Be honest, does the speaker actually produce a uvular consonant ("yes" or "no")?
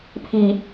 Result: no